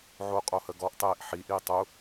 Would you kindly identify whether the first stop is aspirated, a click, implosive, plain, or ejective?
ejective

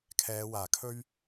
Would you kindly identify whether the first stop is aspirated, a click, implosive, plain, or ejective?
aspirated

